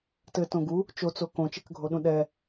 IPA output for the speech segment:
t ɘ t õ ɡ u | t͡ʃ o t͡s o k õ t͡ʃ e k ɡʱ o ɗ ũ ɗ ɛ

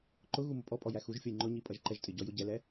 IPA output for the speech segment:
ǃ ʊ ɣ u m ʊ pʼ ɔ pʼ ɔ j æ x u ʒ fʲ ʌ j ŋ͡ǃ ʊ ɲ i pʼ ʌ ʒ ǃ ɛ ʒ tʼ ɪ ɟ ɔ j ʊ ɟ ɛ l ɛ

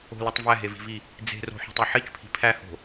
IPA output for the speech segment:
o̤ l o tˤ v æ ɦ e v i̤ v i | d͡z e̤ r o̤ ħ o̤ tˤ e ħ i t͡ʃ pʰ i̤ pʰ æ h o̤

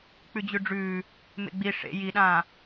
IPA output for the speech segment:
k͡p ʉ d͡ʑ ʉ ɖ͡ʐ ʉː | m ḛ ɡ͡b i ʂ ḛ j i ɗ ãː

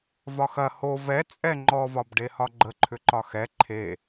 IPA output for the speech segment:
v ɒ x ɐ h o v ɛ t͡sʼ ɛ ŋ͡ǃ ɔ v ɒ b ɖ e h ɒ ɡ͡ǃ ə ǃʰ ʏ ǃ ɒ x ɛ ǃʰ e

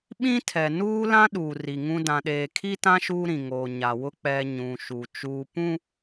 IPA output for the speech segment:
ɓ ĩ˦ tʰ ɛ˨ n uː˦ l ã˦ ɗ uː˨ r i˨ ŋ ũ˦ d ã˨ ɗ eː˨ kʰ i˦ t ã˦ ʃ uː˦ ɾ ĩ˨ ŋ oː˨ ɲ a˨ w ʊ˦ k͡p ɛ˦ ɲ ũ˨ ʃ u˨ t͡ʃ uː˦ p ũ˦

